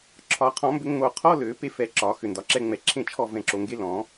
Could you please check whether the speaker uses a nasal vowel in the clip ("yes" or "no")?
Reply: yes